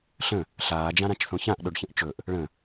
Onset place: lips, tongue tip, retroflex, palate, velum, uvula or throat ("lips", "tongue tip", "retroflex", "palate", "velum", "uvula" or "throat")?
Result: tongue tip